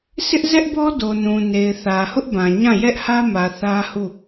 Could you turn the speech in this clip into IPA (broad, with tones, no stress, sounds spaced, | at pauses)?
s ɪ˦ ʔ z ɛ˦ ʔ b ɔ˦ d o˨ n ũ˨ n e˨ ɪ̯ θ ä˨ h ʊ˦ ʔ b ã˨ ɲ ã˦˨ j ɛ˦ ʔ h ä˦ m ä˨ θ ä˦ h u˦˨